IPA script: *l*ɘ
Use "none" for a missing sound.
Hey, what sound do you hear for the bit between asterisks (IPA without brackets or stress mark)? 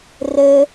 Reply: r